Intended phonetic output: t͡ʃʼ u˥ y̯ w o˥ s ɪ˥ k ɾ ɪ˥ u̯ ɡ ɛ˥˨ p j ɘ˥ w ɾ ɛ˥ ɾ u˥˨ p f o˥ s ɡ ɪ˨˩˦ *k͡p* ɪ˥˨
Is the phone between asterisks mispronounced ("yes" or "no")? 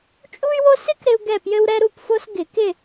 yes